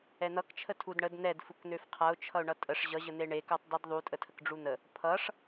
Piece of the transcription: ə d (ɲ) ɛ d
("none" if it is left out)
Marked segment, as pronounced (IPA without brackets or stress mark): n̪